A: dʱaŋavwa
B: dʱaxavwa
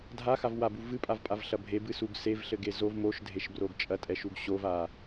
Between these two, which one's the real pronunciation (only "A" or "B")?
B